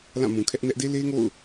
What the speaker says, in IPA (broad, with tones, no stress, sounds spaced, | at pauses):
l ã˦˨ m ũ˨ kʰ ɛ˦ ʔ n ɛ˦ ʔ d e˦ l e˦ ŋ o̰˦˨ ʊ̯